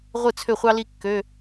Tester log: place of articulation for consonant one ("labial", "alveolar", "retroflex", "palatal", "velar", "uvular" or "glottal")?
uvular